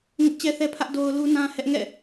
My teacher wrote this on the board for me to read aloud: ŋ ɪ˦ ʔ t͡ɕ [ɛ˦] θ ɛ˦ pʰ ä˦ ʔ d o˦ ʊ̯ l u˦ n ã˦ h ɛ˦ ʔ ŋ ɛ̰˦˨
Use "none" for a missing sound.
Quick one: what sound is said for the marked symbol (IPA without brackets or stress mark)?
ɛ˦